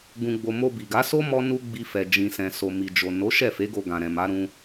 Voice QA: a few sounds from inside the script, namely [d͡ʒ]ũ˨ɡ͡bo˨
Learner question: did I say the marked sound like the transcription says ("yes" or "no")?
no